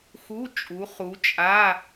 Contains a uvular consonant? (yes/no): yes